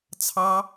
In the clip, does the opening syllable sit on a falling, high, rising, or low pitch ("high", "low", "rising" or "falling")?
high